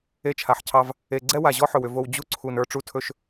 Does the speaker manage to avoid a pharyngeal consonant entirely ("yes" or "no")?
no